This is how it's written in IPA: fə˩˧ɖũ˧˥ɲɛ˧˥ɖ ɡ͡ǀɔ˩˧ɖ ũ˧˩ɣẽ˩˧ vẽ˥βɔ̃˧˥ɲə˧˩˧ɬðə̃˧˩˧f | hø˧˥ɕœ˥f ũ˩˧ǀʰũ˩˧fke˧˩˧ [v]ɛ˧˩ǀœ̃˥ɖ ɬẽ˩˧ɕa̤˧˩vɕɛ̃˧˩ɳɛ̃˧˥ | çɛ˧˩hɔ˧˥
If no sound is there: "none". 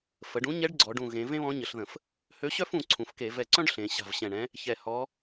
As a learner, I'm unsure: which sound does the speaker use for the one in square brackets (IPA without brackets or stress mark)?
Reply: v